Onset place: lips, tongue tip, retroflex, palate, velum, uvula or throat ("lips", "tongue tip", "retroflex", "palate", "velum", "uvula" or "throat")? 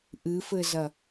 throat